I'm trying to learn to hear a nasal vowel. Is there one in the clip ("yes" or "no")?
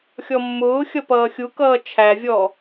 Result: no